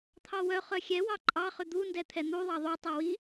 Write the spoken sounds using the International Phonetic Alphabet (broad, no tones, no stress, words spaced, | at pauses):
t̪ʰɑwœ χœxʲɛwɑ ǃʼɑχʏ d̪undɛt̪ʰɛ n̪u ðˤɑðˤu tˤɛwi